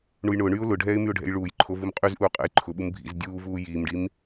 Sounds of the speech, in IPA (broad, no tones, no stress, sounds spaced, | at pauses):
ɳ u j ɳ ʊː ɳ yː ʊ̯ l ʊ ɖʱ ɛː ɪ̯ m y ʊ̯ ɖʱ ɛ̰ j ɭ uː j ǃʰ o v u m qʼ y z ʔ uː qʼ ɛ̰ j ǃʰ ʊ ɓ u m bʱ ḭ z dʲ uː v uː j iː m ɖ i m